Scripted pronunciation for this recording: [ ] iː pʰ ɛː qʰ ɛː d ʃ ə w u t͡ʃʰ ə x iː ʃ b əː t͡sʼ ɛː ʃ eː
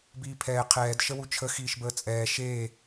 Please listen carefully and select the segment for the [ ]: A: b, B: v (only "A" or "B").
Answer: A